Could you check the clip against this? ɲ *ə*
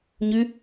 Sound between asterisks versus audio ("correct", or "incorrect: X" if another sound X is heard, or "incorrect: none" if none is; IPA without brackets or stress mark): incorrect: ʉ